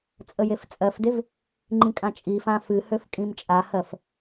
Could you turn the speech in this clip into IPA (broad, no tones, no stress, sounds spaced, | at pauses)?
t͡sʼ ə j e f t͡sʼ ɜ f d e v | ŋ͡ǃ ĩ kʼ ã t͡ʃʼ i f ã f ɨ h ø f kʼ ĩ m t͡ʃʼ a h ɜ f